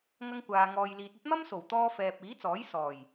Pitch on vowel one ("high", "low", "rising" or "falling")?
high